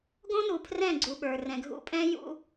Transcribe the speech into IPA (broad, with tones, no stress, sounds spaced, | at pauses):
ɡ õ˦ n u˨ pʰ r ɛ̃˦˨ ɡ͡ǀ u˨ ɓ ə˞˨ r ɛ̃˨ ɡʱ ṵ˦ pʼ ɛ̃˦ j ṵ˦